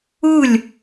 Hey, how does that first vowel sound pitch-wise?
falling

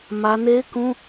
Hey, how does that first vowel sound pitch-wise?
high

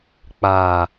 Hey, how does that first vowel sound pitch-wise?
low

